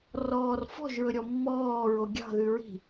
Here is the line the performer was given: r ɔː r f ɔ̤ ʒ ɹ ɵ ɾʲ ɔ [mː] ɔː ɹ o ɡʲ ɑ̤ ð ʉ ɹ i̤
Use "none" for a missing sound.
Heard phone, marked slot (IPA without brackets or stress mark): mː